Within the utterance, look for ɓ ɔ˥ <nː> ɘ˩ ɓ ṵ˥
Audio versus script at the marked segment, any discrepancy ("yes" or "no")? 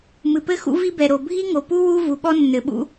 no